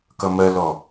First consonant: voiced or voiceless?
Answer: voiceless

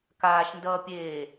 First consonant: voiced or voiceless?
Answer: voiceless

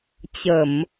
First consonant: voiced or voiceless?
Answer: voiceless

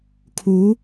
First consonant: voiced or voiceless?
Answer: voiceless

